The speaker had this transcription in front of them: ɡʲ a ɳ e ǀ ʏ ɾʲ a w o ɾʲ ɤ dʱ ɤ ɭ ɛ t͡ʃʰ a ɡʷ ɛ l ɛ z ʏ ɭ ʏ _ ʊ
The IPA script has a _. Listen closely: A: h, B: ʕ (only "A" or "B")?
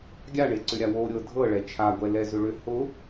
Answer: A